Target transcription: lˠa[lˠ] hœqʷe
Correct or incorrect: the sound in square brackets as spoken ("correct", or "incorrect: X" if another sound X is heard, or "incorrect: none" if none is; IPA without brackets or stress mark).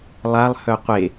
correct